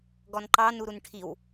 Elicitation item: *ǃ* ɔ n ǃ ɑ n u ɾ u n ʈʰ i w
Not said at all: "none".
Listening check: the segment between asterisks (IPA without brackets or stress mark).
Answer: ɡ